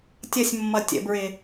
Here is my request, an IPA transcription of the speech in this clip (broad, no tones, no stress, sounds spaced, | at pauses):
tʲ ʌ sʲ mː ʌ tʲ ə̰ b ɹ ɪ